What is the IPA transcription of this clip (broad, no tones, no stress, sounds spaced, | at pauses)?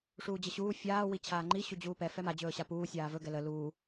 ʂ uː d͡ʑ ə ɕ uː fʲ aː w i t͡ɕʰ aː ŋ͡ǃ i ɕ u d͡ʑ uː p ɛ f ɛ m a d͡ʑ ɵː ɕ a p uː sʲ aː v ɵ ɡ ɛ l ə l uː